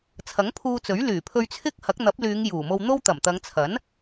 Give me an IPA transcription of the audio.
t͡sʰ ɐ˨˥ ŋ pʰ uː˧ t͡s ɵ˨˥ ɥ l yː˨˩ pʰ ɵ˧ ɥ t͡sʰ ɪ˥ k̚ h ɐ˨˥ k̚ n̪ ɐ˨˥ p̚ l yː˨˧ ŋ j uː˨˩ m o˧ w n̪ o˥ w t̪ ɐ˨˩ m t̪ ɐ˨˧ ŋ t͡sʰ ɐ˨˥ n

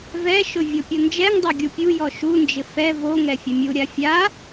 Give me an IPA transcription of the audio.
v ɛ ʃ ʊ vʲ o pʲ o n d͡ʒ ɛ ŋ dˤ o ɡʲ u pʲ u j ɔ ʃ u n d͡ʒ ɪ f ɛ v o ŋ ɛ fʲ ɛ mʲ u ɾʲ a fʲ a

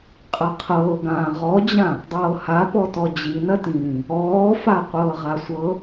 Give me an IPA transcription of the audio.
qʼ ɐ qʰ ɤː ɡ ãː ʁ ɔ d͡ʑ ã | dˤ ɤː h a p ɔ t ɔ d͡ʑ i n ɐ t ĩː | ɔː f a qʷ ɤː ʁ a sʷ ɤ

